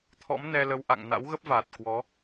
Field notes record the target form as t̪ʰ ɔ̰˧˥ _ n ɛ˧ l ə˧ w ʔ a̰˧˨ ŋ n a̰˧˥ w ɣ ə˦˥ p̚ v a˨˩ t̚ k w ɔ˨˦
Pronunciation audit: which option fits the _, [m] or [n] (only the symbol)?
m